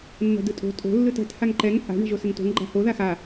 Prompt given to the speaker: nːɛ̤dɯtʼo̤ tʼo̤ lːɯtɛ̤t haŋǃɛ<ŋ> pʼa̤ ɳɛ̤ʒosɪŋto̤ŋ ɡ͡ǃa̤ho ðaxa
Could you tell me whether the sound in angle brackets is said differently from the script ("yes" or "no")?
no